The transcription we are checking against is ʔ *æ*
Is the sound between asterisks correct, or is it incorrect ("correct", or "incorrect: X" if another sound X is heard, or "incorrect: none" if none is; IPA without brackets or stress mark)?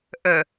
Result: incorrect: ə